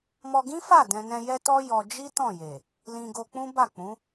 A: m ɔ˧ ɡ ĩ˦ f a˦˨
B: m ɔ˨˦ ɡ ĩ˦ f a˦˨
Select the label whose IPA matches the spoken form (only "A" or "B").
A